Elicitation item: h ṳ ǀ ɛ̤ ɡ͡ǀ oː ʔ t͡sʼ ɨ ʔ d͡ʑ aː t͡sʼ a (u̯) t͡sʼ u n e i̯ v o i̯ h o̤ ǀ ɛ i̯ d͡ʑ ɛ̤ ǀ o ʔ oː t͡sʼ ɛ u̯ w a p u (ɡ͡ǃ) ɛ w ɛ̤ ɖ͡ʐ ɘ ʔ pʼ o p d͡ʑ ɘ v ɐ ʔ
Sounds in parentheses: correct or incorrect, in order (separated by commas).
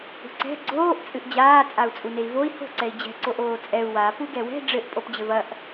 correct, incorrect